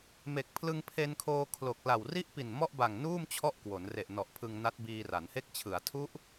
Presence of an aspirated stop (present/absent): present